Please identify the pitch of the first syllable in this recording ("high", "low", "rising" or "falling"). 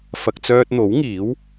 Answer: low